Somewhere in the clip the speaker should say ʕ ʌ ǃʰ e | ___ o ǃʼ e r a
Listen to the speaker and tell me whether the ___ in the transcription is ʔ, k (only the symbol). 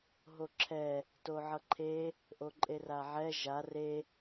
ʔ